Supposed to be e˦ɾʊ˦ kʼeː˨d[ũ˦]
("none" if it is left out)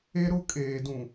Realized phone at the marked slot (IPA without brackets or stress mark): ũ˨